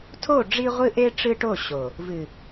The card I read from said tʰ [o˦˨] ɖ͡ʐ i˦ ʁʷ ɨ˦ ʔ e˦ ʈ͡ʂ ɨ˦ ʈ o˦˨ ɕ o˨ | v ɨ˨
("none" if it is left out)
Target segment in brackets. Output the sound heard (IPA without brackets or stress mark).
o˦˨